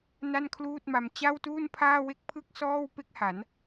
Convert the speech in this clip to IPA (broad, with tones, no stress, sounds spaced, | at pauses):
n a˥˩ n kʰ l uː˥˩ t̚ m a˧ m t͡ɕ a˥˩ w t uː˥˩ n pʰ aː˥˩ w e˥˩ k̚ pʰ ɯ˥˩ k̚ s ɔː˥˩ w p e˥˩ k̚ h a˩˦ n